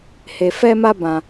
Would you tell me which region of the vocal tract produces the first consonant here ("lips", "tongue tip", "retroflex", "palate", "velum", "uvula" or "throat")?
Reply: throat